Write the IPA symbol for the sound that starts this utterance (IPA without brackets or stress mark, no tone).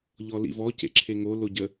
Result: ʎ